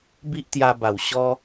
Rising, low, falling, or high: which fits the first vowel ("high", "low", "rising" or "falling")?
high